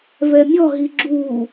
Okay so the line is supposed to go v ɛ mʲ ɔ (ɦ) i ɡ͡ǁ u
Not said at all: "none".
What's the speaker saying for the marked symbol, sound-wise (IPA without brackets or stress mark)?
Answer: ɦ